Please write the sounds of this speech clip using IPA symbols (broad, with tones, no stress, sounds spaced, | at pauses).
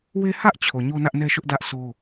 w e˦ h ä˦ ʔ t͡ɕʰ o˨ ɲ o˦ n ä˦ ʔ n ɛ˦ ʃ ʊ˦ ʔ d ä˦ ʔ s o˦